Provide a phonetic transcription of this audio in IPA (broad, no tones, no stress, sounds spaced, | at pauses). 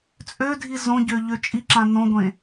t͡sʼ ø dʱ i z õ ɟ ø ʎ ø t͡ʃʼ i ǁ ã n õ ɡʷ ẽ